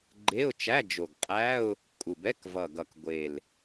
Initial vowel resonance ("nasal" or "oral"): oral